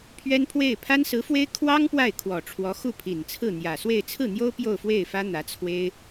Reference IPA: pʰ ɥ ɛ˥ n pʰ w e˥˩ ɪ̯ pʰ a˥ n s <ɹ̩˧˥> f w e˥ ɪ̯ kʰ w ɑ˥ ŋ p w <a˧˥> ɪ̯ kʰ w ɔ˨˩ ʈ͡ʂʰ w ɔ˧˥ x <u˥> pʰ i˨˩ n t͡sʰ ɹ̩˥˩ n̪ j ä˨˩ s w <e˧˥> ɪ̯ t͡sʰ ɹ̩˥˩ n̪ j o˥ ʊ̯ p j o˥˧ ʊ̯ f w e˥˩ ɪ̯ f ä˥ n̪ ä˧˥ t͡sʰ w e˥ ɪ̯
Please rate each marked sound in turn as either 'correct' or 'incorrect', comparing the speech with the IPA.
correct, incorrect, incorrect, incorrect

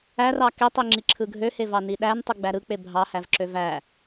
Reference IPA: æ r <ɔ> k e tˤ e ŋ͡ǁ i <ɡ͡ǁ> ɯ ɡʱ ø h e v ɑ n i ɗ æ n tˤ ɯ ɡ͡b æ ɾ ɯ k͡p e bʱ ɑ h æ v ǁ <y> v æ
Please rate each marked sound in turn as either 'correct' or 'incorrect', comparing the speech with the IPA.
incorrect, incorrect, incorrect

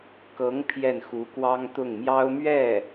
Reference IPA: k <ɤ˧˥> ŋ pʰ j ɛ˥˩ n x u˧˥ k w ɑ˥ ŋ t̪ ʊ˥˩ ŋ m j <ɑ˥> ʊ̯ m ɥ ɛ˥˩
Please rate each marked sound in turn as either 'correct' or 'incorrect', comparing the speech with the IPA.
correct, correct

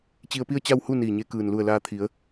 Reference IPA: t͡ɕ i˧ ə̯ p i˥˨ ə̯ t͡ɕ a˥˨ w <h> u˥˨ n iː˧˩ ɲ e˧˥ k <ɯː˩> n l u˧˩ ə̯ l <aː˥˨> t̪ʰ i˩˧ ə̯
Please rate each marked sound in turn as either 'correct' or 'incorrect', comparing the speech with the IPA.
correct, correct, incorrect

